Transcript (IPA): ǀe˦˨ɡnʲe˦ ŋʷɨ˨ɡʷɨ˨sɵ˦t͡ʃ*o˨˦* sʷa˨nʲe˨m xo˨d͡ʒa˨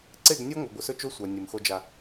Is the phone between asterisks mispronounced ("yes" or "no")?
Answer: yes